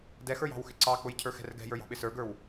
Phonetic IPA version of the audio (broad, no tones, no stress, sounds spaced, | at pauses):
d ɛ x ə˞ j ɑ̤ w x ɪ ǀ ɑ k͡p ʊ j cʰ ə˞ x ɛ̤ r ɡ ɛ̤ j ə˞ j ɑ̤ ɓ ɪ s ə˞ ɡ ə˞ w